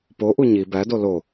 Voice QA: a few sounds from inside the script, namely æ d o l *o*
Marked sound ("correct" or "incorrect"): correct